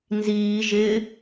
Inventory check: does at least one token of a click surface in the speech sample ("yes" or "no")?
no